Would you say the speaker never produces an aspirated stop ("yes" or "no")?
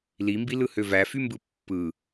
yes